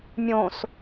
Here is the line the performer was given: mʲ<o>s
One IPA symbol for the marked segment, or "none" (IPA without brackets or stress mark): õ